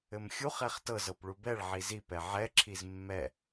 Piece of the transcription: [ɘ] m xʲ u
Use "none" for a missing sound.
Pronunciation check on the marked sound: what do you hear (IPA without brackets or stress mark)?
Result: ɘ